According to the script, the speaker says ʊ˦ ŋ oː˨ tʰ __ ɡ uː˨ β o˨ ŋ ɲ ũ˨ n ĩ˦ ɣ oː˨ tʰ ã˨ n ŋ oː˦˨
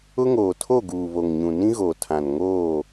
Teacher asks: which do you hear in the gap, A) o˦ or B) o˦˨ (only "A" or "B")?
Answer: B